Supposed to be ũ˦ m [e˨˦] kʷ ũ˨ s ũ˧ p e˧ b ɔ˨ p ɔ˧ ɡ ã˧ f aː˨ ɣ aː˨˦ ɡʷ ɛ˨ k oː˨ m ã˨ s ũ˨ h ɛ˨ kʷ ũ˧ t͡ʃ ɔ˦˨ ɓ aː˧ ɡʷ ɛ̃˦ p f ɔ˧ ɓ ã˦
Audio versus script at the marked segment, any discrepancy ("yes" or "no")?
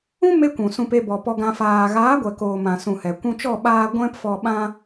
yes